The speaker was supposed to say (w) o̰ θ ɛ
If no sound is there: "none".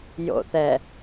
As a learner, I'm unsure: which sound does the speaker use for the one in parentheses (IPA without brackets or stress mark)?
j